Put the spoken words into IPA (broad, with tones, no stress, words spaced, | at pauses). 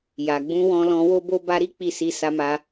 ja˨ɡ͡bũ˧ wɔ̃˧lɔ̃˧wo˦bo˦ ba˧ɾi˦ k͡pi˦˨si˧ sa˧ma˧